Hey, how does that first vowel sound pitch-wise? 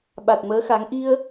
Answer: low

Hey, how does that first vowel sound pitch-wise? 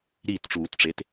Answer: falling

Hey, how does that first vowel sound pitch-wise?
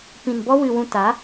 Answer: low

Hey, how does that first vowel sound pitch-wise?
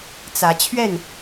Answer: rising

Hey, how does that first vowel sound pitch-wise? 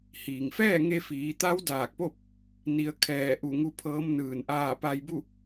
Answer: low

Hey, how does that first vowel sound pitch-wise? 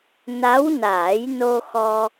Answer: rising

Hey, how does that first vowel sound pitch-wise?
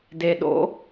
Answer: low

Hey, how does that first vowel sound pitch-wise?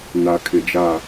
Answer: low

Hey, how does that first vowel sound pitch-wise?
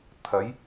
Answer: rising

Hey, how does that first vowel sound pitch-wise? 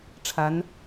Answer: rising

